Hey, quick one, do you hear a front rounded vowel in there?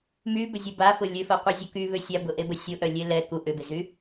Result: yes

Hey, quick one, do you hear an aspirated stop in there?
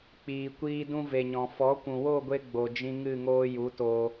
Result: no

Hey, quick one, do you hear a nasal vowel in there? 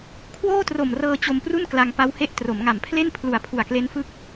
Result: no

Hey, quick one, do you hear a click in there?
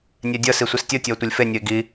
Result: no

